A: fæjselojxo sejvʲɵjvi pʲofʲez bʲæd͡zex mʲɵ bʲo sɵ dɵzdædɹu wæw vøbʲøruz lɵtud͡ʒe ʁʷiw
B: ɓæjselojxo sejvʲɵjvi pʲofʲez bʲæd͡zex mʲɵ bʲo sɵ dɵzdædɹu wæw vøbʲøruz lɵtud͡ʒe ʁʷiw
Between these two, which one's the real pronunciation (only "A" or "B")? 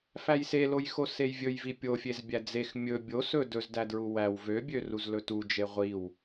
A